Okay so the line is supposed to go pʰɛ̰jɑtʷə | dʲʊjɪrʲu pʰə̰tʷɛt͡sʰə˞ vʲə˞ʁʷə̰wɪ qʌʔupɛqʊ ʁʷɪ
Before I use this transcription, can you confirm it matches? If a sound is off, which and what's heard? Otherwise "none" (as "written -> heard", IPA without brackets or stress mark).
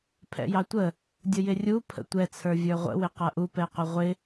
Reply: none